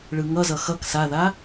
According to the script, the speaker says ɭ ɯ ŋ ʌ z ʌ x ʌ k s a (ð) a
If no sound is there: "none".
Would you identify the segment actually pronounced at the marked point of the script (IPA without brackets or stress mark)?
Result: ð